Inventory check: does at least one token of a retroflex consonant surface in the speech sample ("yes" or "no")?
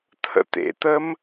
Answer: no